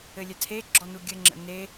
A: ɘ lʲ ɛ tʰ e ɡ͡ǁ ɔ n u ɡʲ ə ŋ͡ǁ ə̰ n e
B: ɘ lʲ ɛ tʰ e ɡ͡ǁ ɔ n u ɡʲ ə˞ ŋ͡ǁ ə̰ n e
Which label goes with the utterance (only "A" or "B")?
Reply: A